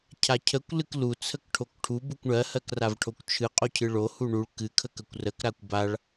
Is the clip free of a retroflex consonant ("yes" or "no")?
no